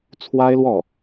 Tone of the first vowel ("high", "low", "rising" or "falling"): high